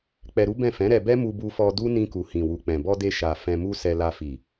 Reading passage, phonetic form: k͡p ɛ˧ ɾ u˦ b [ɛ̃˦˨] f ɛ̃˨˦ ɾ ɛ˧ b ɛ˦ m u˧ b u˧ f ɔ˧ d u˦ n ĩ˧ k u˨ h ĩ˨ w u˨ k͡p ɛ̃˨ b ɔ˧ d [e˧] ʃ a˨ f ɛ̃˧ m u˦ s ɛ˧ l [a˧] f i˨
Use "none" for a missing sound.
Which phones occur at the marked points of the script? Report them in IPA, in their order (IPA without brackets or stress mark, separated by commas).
ɛ̃˦˨, e˧, a˧